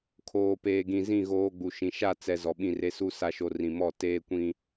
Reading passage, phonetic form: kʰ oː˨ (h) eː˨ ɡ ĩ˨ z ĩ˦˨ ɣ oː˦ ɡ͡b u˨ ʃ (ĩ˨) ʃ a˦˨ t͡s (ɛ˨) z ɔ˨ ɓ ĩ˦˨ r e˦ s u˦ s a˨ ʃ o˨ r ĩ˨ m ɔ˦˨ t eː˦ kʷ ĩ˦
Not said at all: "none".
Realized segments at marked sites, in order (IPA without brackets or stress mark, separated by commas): p, ĩ˨, ɛ˨